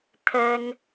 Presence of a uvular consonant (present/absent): absent